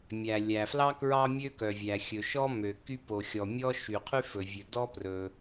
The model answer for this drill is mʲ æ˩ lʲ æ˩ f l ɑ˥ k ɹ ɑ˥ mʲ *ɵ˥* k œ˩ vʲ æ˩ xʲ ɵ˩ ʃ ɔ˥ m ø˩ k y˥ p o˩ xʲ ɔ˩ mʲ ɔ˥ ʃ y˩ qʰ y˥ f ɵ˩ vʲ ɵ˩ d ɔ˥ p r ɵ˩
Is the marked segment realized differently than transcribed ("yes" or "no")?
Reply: yes